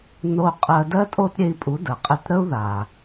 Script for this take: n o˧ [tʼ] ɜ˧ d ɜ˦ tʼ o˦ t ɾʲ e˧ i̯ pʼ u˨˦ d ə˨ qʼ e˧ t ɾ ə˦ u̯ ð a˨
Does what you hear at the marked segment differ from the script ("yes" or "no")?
yes